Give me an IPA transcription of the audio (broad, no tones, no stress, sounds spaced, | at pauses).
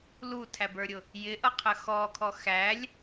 l u tʰ æ b ə˞ ɾʲ ʊ | j ɪ ʔ ʌ qʰ ə x ɔ kʰ ɔ x æ lʲ